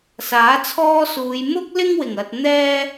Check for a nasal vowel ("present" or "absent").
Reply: absent